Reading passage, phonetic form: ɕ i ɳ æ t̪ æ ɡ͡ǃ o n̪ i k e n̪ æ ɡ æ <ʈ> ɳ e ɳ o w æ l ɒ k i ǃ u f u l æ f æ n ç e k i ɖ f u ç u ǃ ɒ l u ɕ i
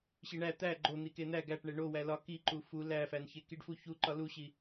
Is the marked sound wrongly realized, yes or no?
no